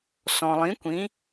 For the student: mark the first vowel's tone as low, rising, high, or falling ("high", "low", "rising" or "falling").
low